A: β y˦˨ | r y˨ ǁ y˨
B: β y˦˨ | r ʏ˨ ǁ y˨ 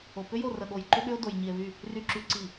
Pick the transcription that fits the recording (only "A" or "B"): A